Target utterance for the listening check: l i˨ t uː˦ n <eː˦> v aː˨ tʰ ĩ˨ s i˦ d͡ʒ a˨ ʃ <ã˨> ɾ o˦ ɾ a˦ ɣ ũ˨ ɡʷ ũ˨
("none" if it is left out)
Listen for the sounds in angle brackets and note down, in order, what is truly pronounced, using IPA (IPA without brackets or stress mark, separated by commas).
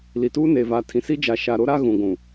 eː˨, a˨